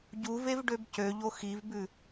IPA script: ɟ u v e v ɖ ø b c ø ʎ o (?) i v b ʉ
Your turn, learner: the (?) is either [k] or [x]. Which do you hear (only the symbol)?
x